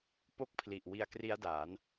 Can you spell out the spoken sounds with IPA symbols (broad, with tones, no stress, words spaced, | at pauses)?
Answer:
po˦˥k̚pʰli˨˩ʔ wi˧a̯kri˦˥a̯daː˩˦n